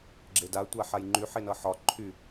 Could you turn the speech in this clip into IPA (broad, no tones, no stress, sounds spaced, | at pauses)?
ɡ͡ǁ e d a tʷ a ħ a j ŋ͡ǃ y ħ e n ʌ ħ ɒ ǃʰ y